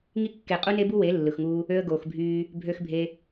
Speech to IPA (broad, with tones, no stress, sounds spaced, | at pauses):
ŋ i˦ kː e˨ qʼ u˦ n e˦ b u˦ w e˨˦ lː ɯ˨ x ŋ uː˧ | ø˧ ə̯ ɡ oː˨ x bʱ yː˧ | bʱ ø˧ x bʱ e˧